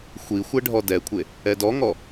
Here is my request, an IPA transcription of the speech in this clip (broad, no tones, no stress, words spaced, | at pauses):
xʷi xʷɛɖʱɔdɛkʷʰe | ɛdɔŋɔ